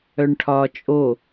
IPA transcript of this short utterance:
œɳʈʰɒːt͡ʃʼo

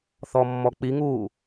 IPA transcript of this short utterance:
θɔmːɔk͡piŋuː

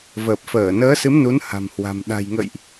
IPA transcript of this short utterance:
vəː˨˩p̚fəː˧˩nəː˨˦ sɨ˨˦mnu˨˦nha̤˨˩mhwa̤˨˩m ɗa̤˨˩jŋə̰˧˨jʔ

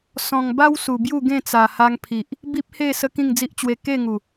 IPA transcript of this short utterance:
sɔ̃˨˩ŋba˦w su˨˩bju˥˧ɡẽ˥˧ t͡sa˨˩ha˧ŋpʰi˨ʔ | bi˦p̚he˥˧ sə˦kĩ˥˧ŋd͡zi˦ʔt͡ɕwe˧ ke˥˧ŋu˨˩

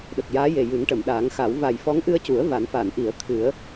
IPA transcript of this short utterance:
ɗə˨˩k̚jaː˧˥je˨˩ jɨ˨˩˦ŋʈə˨˩˨mɗaː˨˩˦ŋxa˨˩˦w va˨˩jfɔ˧˥ŋʔɨ˧ə̯cu˨˩˦ə̯ va˨˩˦nfa˨˩˨nʔi˨˩˦ə̯ t̪ʰɨ˨˩˦ə̯

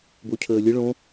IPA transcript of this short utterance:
bocʰəːlʲə ɭõ

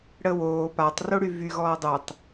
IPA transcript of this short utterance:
ɽəwoː patˤ roɽyvy ɣɔːdˤutˤ

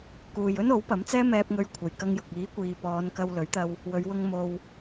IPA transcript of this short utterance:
kuː˨jɵ˥n o˨˥wpɐ˨˥mt͡sɛː˥ mɛː˧p̚ŋɵ˧ɥ kʷʰɐ˨˩jkɐ˧ŋjʊ˨k̚ iː˨˥ kʷiː˨pɔː˨˧nkɐ˧w lɵ˨˥ɥt̪ɐ˧w | wɵ˨˧ɥwʊ˧ŋ mo˨w

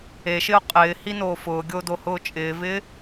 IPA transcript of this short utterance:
eʃɪʊ̯ qʼɪːhinoː fʊːɡʲodohʊː t͡ʃʼɪːvɪː

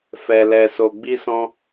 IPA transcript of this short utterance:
fɛ˧lɛ˧ so˧ɡ͡bi˦sɔ̃˦

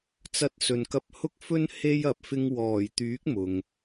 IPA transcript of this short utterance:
t͡sɐ˧t̚sɵ˨nkɐ˧p̚ hʊ˥k̚fɵ˥n he˥jɐ˨p̚ fɪ˧ŋwɔː˨˩jt̪yː˨˥k̚ mʊ˨ŋ

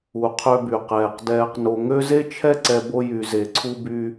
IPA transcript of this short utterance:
u˩qʰø˨by˩ qɛː˨q dɛː˨qno˨ŋø˦ ze˥t͡ʃʰɛ˥ǀɛ˦bo˦ jy˨ze˨ ǀʰu˦by˦

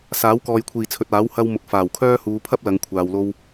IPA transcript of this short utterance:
saː˨˥wkɔː˨jkʷʰiː˨˩ t͡sʰɵ˨t̚aː˨˥w hɐ˧wmʊ˨k̚ faː˨˩wkʰœː˥ huː˨˧pʰɐ˥p̚ lɐ˨˧ŋkʷʰaː˨wlo˧w

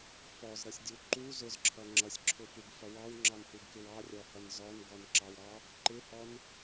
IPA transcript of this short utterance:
fɔzɾʌsʲdʲu ǃu zʊzǁʰʌ ŋ͡ǁʌsʲǁʰʊfuɡfʌ wɑwŋ͡ǁɑnhuɡkɪw ɑrʲɔhʌn zɔnɡɔnǁɑwɾɑ | ǃɪhɔn

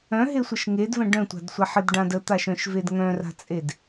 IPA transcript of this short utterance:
œ̃ɦesʷəʃ ŋedvə̃ ɖœ̃tʷa̤dsʷaħ ədɖãd ət̪aʃœ̃ʃved ŋœ̃ra̤t͡sʼed

